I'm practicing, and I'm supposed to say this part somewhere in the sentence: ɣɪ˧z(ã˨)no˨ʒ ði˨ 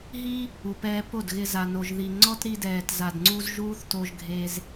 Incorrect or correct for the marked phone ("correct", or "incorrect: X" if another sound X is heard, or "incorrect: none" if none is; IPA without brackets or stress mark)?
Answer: incorrect: a˨